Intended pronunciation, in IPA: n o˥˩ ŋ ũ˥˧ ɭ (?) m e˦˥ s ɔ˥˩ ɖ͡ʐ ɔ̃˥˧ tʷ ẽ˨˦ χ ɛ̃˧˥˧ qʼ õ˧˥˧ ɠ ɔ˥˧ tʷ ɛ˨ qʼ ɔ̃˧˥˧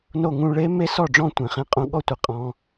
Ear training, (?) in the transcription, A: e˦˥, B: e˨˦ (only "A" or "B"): A